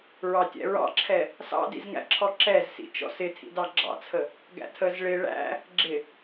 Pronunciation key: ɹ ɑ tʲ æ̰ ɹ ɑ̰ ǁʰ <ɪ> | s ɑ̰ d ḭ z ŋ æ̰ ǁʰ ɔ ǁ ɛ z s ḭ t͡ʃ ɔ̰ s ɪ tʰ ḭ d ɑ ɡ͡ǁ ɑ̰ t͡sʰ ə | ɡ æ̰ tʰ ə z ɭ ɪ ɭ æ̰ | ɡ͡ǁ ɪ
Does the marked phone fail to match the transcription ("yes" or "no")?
yes